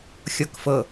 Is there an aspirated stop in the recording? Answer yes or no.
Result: no